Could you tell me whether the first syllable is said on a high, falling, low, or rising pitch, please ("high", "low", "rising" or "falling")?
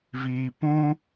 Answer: low